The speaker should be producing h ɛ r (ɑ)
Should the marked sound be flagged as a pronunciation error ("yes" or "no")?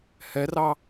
no